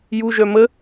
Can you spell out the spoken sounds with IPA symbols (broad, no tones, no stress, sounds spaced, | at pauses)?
j u ʒ œ m ə